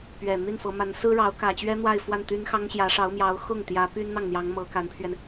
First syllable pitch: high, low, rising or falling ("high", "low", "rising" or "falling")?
low